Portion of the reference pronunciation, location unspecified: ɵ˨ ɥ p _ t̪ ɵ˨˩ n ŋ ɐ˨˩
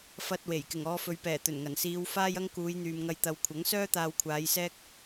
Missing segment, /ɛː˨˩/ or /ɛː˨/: ɛː˨˩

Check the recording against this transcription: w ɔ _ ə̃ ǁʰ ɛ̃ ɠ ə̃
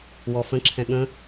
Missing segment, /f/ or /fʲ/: f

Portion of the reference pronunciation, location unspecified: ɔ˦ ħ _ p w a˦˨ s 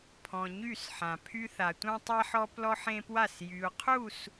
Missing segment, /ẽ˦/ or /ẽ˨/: ẽ˦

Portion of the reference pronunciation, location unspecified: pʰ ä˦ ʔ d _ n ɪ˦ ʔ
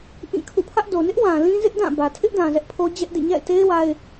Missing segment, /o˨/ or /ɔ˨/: o˨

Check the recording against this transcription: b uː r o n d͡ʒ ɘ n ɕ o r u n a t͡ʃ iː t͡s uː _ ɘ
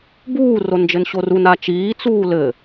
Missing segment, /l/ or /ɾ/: l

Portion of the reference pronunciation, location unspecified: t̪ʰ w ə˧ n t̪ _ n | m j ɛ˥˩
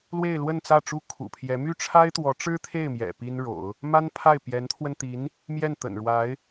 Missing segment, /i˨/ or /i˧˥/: i˧˥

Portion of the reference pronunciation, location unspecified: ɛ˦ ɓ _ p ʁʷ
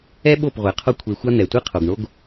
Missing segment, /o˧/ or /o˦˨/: o˦˨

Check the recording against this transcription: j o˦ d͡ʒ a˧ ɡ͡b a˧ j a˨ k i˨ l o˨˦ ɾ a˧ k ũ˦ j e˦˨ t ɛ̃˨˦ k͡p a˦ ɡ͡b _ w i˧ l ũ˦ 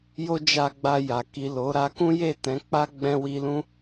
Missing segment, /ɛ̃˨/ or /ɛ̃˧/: ɛ̃˧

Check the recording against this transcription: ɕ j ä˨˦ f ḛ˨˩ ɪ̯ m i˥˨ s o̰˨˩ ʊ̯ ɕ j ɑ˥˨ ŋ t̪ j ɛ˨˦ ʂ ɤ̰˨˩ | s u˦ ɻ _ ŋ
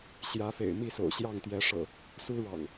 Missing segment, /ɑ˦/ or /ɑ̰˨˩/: ɑ̰˨˩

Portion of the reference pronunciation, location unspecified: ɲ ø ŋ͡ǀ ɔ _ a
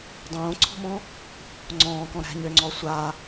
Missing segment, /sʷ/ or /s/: sʷ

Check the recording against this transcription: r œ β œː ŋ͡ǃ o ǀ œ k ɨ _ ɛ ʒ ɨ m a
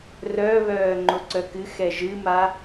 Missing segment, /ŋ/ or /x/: x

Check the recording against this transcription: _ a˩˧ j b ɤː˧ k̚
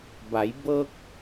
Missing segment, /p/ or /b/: b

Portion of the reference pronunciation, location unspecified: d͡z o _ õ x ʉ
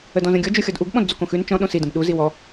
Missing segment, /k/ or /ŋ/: k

